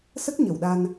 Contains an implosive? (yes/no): yes